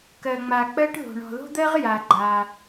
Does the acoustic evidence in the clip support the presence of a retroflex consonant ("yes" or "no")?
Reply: yes